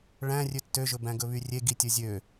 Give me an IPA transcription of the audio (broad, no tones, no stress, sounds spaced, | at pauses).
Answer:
ɭ æ̃ rʲ ø tː ø ʒ ɵ b æ̃ ɡ ɵ β y rʲ e ɡ i tʲ ɵ zʲ ø